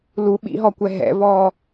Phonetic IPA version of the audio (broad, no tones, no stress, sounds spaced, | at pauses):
l u ɓ ḭ ɦ ɔ kʷ ɛ ɦ ɛ̰ v ɔ